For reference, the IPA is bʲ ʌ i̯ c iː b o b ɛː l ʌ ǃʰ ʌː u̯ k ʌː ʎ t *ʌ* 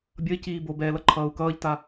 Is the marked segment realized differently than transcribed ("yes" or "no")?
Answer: yes